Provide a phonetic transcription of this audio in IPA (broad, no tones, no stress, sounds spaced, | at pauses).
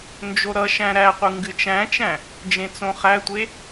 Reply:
n d͡ʒ o ɾ ʌ ʃ æ̃ ɾ æ qʷ ɨ ŋ ɡ ɨ t͡ʃ æ̃ t͡ʃ æ̃ | d͡ʒ ẽ t͡s õ χ æ tʷ e